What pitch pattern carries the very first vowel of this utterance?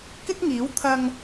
high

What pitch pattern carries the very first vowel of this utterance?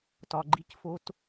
low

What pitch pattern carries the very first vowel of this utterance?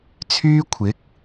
high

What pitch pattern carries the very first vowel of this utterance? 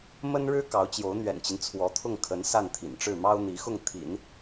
high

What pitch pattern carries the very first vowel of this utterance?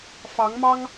rising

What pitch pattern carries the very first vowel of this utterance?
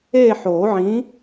falling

